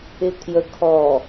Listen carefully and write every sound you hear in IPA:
ɪ kʰjə kʰɔ

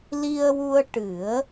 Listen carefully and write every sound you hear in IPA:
li˧ə̯wu˧ə̯ ʈɨ˨˩˦ə̯

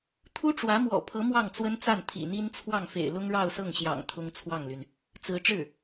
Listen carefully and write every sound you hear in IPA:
t̪ʰu˥ʈ͡ʂwä˧˥ mwɔ̰˨˩ pʰɤ˧˥ mwɑ˥˩ŋt͡swə˥nt͡sa˥˩n t̪ʰḭ˨˩n̪i˥nt͡sʰwɑ˥˩ŋfḛ˨˩ɪ̯ lʊ˥ŋɻɑ˥˧ʊ̯sɤ˥˩ŋɕjɑ̰˨˩ŋ t̪ʰʊ˥ŋt͡sʰwɑ˥˩ŋly˩n | t͡sɹ̩˧˥ʈ͡ʂɻ̩˥˩

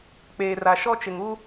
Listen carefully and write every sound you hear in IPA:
k͡peː˨ra˨ʃɔ˦t͡ʃɪ˨ŋ u˦

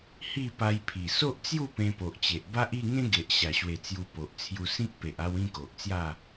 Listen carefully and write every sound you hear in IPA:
hi˥˧pa˧jpʰi˨˩ so˦ʔt͡sju˥˧ pẽ˧po˨ʔt͡ɕe˨ʔ ba˦ʔi˥˧ŋẽ˦ ɡe˨ʔɕa˨˩ɕwe˨˩ t͡sju˧po˨ʔt͡sʰju˧ sĩ˦k̚pe˨ʔa˧w ĩ˥˧ko˨ʔt͡sja˥˧

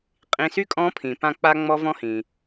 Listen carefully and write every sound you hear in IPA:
qʼĩ˩˧˩sy˥kʼɔ̃˧˥ pʰĩ˩pã˥˨k͡pa˥ ŋ͡mɔ˥vɔ̃˥hĩ˩

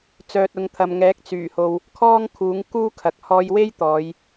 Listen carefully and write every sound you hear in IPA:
t͡sœː˨t̚ʊ˨˧ŋt̪ʰɐ˨mŋɛː˨˥k̚ t͡syː˨˩ho˨w | kʰɔː˥ŋ kʰuː˨˥ŋ kuː˥kʰɐ˨k̚ hɔː˧jwe˥j t̪ɔː˨˧j

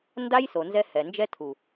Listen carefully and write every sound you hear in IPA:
nda˦jso˨nzɛ˧ hɛ˨nd͡ʒɛ˦ tʰu˨

